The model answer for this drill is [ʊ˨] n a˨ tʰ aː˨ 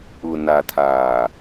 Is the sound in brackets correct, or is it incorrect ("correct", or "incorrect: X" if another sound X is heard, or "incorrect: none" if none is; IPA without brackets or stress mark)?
correct